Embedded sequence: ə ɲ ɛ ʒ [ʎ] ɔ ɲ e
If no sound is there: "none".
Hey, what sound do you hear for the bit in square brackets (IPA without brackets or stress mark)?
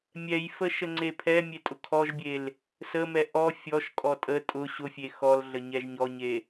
ɲ